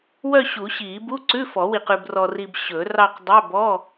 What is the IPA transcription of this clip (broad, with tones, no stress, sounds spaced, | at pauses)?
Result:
w œ˥˧ ɕ u˨˩˦ ɕ iː˨˩˦ b u˧˥˧ ǀ ʉ˧˥˧ f ɔ˨˩˦ w i˨ q ʉ˨ b r ɔ˨ r i˨ b ɕ ɵ˨˩˦ r ɑ˥˧ q dˤ œ˧˥˧ b ɔ˧˥˧